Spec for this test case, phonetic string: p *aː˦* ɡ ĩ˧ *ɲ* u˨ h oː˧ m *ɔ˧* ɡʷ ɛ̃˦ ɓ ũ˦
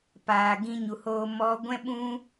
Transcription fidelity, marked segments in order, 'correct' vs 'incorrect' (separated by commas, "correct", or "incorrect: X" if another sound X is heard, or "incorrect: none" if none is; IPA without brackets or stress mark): incorrect: aː˨, correct, correct